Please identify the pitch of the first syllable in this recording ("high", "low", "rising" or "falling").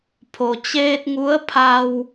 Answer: low